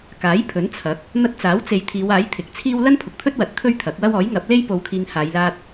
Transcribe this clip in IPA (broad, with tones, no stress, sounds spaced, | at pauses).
k aː˨˥ j pʰ ɵ˨˥ n t͡sʰ ɐ˨˥ k̚ | n̪ ɐ˧ t̚ t͡s aː˨˥ w t͡s e˨ j t̪ʰ iː˨˧ w aː˨˥ j t̪ʰ ɪ˨˥ k̚ t͡sʰ iː˥ w l ɐ˥ n pʰ ʊ˨ k̚ t̪ʰ ɵ˥ t̚ w ɐ˨˥ t̚ t̪ʰ ɵ˥ ɥ t̪ʰ ɐ˨˥ k̚ w ɐ˥ w ɔː˨˥ j ŋ ɐ˨˥ p̚ l e˥ j p o˧ w kʰ iː˧ ŋ h aː˨˧ j l aː˧ t̚